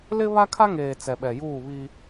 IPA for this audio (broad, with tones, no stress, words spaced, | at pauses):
lɪ˦ βa˦kʰa˦ŋeː˨ t͡sɛ˨ɓɛ˨juː˦˨βi˦